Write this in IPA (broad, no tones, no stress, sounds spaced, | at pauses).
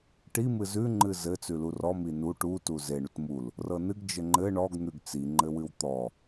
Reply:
ʈ i m ɨ z ʉ ŋ͡ǃ ɨ z ɘ t͡s ʉ l u r ɔ m i n u ʈ u t u z e ɳ u t m u l | r ɤ n ɨ ɡ d͡ʒ ɘ ŋ͡ǃ ɘ ɳ ɔ ɡ n̪ ʉ ɡ t͡s i ŋ͡ǃ ɘ w ɨ w t̪ ɔ